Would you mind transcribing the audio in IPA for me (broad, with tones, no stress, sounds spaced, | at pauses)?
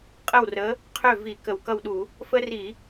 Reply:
qʼ ə˥˩ w r ə˨˥ | qʰ ø˥˩ v i˧˩˧ k ə˧˩˧ w k ʌ˥˩ w ɗ u˧˩˧ | f ə˦ r i˧˩˧